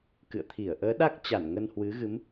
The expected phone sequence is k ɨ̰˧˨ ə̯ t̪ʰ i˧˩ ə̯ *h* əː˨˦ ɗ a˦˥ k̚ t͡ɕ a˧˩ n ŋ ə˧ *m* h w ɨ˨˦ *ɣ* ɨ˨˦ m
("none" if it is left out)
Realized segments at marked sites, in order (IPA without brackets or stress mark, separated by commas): ʔ, n, ɣ